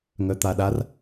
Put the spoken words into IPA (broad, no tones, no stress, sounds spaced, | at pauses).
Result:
ŋ œ t̪ a ɗ a r